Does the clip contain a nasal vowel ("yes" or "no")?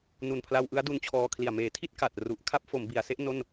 no